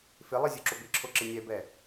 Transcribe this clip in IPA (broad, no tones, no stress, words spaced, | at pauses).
fɪlˠi zʲuǁobɪǁʰo ǁɪnʲɛbɛ